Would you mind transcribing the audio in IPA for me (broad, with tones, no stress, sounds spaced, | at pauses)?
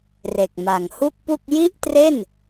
r e˨˩ k̚ m a˨˩ ŋ h u˥˩ k̚ p u˥˩ k̚ j i˥˩ ʔ t r e˥˩ n